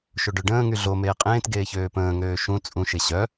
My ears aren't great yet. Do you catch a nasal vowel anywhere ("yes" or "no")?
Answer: yes